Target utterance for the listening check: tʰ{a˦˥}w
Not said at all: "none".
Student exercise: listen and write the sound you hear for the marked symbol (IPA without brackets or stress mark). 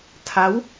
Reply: a˦˥